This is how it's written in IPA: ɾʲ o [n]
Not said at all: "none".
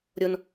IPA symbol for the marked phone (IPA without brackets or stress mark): n